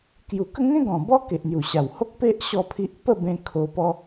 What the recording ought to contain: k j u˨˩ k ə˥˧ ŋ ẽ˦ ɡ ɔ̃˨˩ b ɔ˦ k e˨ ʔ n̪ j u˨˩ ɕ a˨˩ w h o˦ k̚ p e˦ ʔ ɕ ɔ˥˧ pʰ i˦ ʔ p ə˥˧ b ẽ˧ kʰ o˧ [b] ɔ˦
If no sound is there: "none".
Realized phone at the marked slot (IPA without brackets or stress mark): p